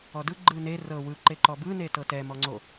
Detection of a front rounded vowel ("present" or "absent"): absent